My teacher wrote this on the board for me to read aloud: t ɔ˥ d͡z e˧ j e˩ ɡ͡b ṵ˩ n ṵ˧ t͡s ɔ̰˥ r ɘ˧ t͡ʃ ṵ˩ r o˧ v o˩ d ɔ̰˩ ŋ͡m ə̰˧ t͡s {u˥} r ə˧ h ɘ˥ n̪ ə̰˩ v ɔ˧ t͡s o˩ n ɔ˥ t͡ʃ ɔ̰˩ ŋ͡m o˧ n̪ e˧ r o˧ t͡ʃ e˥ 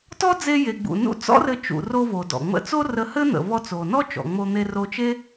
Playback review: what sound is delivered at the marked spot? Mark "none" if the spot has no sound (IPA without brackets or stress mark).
o˥